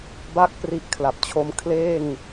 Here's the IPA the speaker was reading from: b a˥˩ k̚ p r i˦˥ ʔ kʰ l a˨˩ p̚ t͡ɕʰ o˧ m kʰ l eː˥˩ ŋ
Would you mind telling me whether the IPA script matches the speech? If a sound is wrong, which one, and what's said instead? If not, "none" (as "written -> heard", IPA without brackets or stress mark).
none